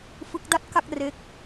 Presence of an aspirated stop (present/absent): absent